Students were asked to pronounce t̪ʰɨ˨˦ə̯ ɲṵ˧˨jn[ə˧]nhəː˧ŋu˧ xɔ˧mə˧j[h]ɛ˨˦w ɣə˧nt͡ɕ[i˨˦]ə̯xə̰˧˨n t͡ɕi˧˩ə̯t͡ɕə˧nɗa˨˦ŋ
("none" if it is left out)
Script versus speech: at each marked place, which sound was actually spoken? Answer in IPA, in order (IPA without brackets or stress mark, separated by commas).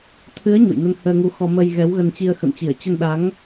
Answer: ə˧, ɣ, i˧